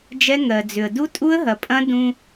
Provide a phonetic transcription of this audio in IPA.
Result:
d͡ʒ ɛ˦ ŋ ɜ˨ d͡z ʏ˨ ə̯ d u˦ tʼ u˦ ə̯ ɦ ɐ˨ pʼ ɐ̃˦ d ũ˦

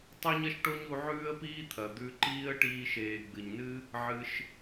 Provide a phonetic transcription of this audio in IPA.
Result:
tˤ o˥ ɲ ɐ˥ ʃ ʈ o˥ ɲ u˦ ʕ ʉː˥ ə̯ p iː˥ t̪ʰ ɐ˨ d̪ ʉ˦ ǃ iː˥ ə̯ ʈ iː˦ ʃ eː˨ ɡ͡b ɨ˨ ɲ n ɨ˥ | ʕ ɨ˨ ʃ

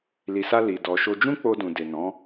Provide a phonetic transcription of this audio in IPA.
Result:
l i˨ s a˧ l i˨ d ɔ˨ ʃ o˧ d͡ʒ ũ˦ k͡p o˧ d ũ˨ d e˨ n ɔ̃˨˦

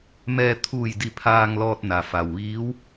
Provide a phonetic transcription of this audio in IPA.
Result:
m ɛː˧ t̪ʰ uː˧˩ j d i˧˩ pʰ aː˧ ŋ l ɔː˧ t̚ n a˩ f a˩ w ʋ iː˧˥ w

